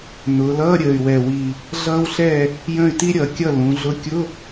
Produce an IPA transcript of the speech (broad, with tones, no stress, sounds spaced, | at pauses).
n ʊː˩˧ l ʌː˧˥˧ ɾʲ əː˨˩ y̯ w ɛ˨˩ w i˨˩ | ɮ ʌː˥ w ɬ ɛ˥˩ | j ə̃˥˩ y̯ t i˥ ɾʲ ʌ˩˧ kʲ ʌ˥˩ l ũ˩˧ ɮ ʊ˧˥ kʲ ʊ˧˥˧